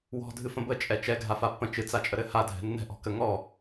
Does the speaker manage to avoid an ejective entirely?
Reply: no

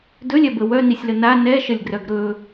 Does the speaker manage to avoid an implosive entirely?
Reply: yes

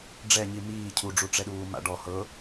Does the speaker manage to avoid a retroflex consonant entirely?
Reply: no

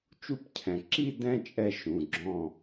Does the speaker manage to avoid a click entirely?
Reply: no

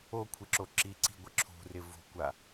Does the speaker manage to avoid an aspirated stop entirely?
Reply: no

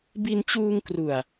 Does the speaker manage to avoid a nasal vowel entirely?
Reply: yes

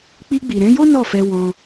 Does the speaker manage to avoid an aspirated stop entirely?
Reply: yes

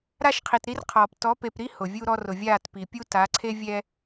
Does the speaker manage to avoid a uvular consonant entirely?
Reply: no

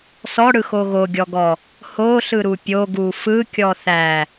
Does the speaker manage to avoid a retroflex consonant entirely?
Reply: no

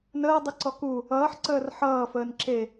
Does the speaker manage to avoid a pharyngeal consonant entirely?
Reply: no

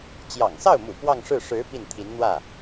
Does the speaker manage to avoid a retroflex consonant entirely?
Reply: no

